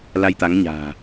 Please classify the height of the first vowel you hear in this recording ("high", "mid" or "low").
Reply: low